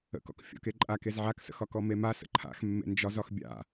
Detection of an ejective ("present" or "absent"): present